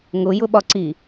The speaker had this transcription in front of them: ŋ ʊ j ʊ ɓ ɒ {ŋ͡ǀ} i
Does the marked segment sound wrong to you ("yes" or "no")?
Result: yes